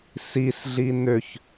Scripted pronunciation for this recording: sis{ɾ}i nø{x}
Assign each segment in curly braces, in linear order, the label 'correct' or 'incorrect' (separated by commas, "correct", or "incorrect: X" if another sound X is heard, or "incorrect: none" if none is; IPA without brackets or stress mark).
incorrect: ɮ, incorrect: ç